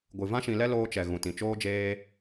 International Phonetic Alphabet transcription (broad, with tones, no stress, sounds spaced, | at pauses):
ɡʷ ɨ˨ v ã˦ ʃ ĩ˧ l ɛ˦ l oː˧ t͡ʃ ɛ˨ ɣ ũ˨ t ĩ˨ t͡ʃ oː˦ d͡ʒ eː˦